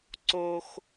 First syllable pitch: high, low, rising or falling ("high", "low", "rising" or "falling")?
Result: high